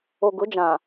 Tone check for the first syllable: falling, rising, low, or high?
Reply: low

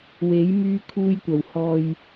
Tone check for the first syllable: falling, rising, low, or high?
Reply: rising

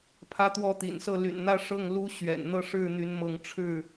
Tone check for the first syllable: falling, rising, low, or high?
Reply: high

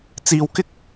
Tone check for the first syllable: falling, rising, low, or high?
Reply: low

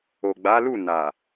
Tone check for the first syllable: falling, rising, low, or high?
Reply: low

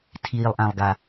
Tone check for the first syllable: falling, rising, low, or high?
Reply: low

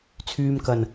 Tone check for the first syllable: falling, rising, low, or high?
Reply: low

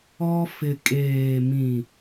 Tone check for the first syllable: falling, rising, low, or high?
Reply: high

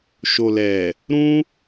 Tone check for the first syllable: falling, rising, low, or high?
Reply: low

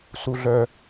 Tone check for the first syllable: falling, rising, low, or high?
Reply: high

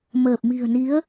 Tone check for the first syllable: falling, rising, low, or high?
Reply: low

